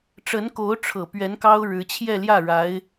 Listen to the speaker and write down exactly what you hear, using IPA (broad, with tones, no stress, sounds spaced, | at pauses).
ʈ͡ʂ ə˧˥ n k o˧˥ ʊ̯ ʈ͡ʂʰ ɤ˨˩ p ɥ ɛ˧˥ n k ɑ˥ ʊ̯ ɻ ɻ̩˧˥ t͡ɕʰ j ɛ˥˧ l j ä˥˩ ɻ a˧˥ ɪ̯